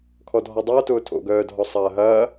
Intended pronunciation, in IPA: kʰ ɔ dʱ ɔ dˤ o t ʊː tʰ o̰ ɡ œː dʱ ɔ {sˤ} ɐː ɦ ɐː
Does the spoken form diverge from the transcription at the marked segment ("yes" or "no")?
no